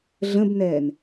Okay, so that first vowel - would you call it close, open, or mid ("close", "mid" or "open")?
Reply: mid